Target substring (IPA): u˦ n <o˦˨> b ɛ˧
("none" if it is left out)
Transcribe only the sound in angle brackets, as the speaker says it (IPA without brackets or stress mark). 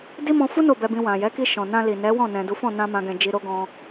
o˦˨